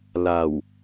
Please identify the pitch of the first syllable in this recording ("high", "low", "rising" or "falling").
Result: low